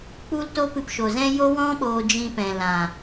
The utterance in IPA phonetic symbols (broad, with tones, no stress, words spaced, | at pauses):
k͡pu˦lto˦ pɨ˧pʃo˨zɛ̃˦ jo˦wɔ̃˦ ɓoː˧d͡ʒĩ˧pɛ̃˨ lã˨